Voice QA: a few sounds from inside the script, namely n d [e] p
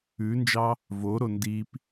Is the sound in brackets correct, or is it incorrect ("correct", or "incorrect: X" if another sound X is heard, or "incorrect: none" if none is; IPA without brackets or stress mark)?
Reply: incorrect: i